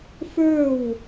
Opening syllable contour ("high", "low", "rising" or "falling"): falling